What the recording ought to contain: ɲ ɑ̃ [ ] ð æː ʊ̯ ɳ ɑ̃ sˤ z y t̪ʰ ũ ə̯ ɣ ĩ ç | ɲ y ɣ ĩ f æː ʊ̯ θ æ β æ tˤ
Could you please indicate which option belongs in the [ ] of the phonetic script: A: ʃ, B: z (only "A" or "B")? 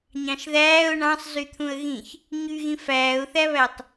A